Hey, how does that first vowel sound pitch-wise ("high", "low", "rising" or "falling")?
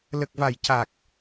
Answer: low